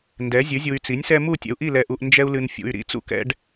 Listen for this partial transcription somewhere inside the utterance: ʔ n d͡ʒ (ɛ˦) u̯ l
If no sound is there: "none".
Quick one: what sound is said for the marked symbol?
ɛ˦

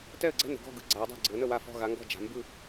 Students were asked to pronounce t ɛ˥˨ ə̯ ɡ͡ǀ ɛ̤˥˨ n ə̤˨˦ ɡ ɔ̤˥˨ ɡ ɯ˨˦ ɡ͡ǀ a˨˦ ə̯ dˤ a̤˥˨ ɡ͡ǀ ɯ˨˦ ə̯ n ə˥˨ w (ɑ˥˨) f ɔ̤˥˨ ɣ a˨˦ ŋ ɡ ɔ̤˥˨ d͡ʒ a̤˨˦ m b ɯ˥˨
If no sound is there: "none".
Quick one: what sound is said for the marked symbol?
a˥˨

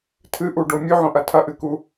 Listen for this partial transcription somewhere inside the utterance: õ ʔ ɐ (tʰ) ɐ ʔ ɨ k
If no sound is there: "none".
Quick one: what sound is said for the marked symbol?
tʰ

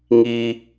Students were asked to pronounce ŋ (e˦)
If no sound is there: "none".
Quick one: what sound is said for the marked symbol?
i˦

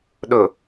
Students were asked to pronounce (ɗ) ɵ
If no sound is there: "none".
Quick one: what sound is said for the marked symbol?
ɗ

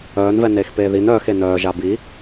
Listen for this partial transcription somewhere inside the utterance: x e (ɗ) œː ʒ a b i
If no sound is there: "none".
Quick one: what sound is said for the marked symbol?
n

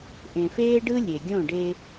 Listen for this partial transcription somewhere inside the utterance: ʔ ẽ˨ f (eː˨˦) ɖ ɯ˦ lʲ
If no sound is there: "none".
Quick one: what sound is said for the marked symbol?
eː˦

